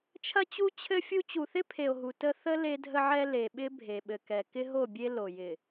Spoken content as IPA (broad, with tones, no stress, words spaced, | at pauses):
t͡ʃʰɐ˦t͡ɕu˦ t͡ɕʰɘ˦fʲu˦ t͡ɕu˨θɪ˦pʰe˨o̯ɦu˨ tə˦ θə˦ le˦dʱə˦ʕɛ˦ le˨ɓɪ˦ bʱe˨ɓɘ˨kɛ˨ kɪ˦ɦo˦˨bʲe˦ lo˨jɪ˨